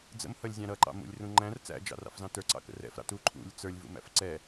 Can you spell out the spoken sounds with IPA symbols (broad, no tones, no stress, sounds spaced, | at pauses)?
d͡z ə̰ m h ʌ lʲ zʲ ɑ̃ ɾ ʌ ǃ ɑ̰ m ṵ lʲ r ũ ŋ͡ǃ æ̃ r t͡s æ̰ d͡ʒ ɑ̰ r ɑ̰ f z ɑ̃ t ə˞ ǀ ɑ̰ k ə̰ r ɛ̰ f ɾ ɑ̰ t u ǃʰ ṵ lʲ t͡s ə˞ lʲ v ṵ m æ̰ f ǀ ɛ